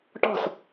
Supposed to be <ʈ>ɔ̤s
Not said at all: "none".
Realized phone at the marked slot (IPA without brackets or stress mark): ʈ